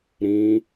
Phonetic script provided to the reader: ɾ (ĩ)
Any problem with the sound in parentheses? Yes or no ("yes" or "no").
no